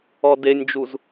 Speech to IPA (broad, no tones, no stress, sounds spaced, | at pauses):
ɔ d e nʲ d͡ʒ u z